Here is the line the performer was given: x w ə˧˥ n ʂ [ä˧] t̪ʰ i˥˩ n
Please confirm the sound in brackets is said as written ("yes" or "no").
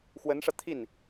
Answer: yes